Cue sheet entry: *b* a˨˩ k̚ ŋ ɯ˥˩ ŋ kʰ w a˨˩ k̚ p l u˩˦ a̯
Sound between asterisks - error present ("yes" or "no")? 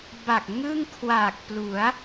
no